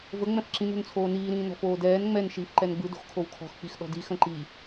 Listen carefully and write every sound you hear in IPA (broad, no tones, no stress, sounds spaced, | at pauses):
v ə ŋ͡m ɛ̃ f ǁ ĩ n o̤ n t͡sʰ oː n iː ɾ ĩː n ɔ̤ f oː d ɛː n ŋ͡m ɛ n ʃ iː f ǃ ɛ n ɡ͡b ɯ d o̤ x kʰ o w kʰ ɔ̤ x k͡p i x ɗ ɔ̤ d i x ə̃ ǃ i